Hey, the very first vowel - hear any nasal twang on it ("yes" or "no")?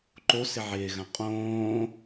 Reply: no